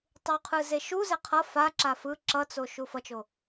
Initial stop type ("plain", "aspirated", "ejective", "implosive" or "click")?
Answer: plain